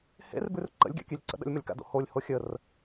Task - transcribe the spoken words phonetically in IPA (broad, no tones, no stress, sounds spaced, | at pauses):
h ḛ r b ʉ r ǃ ə̰ lʲ ɡʲ a̰ kʲ ʉ lʲ ǀ ə̰ ɗ ə̰ lʲ m ə lʲ k a̰ d o̰ h o lʲ h o xʲ ə r